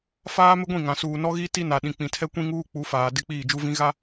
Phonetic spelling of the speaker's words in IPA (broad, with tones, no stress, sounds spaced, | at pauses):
f aː˦ m ɪ˦ ɡʷ ĩ˦˨ ŋ ã˨ s uː˨ n ɔ˦ ɣ i˦ t i˦ n a˨ ɗ ĩ˨ k͡p ĩ˨ tʰ ɛ˦ kʷ ĩ˦ ŋ uː˦ k͡p u˨˦ f aː˨ d ɪ˦ k͡p iː˦˨ d͡ʒ u˦ v ĩ˦ ɣ a˦